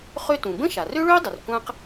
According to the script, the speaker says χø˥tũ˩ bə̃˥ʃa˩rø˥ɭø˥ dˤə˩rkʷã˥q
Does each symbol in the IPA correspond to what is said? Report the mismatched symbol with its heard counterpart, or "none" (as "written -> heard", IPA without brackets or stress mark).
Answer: none